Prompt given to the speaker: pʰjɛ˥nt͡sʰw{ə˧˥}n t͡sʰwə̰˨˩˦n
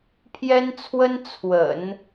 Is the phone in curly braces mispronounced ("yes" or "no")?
yes